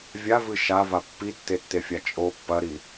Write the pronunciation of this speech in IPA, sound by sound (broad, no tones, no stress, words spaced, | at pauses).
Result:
vʲavɨ ʃava pːitːetːefʲa t͡ʃʼo pːɐɾi